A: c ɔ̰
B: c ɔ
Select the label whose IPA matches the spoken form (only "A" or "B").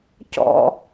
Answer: A